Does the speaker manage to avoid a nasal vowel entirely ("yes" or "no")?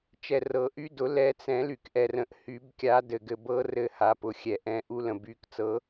no